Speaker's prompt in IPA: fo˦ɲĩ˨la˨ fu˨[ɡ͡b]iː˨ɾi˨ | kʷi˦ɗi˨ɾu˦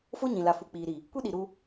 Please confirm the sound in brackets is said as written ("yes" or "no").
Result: no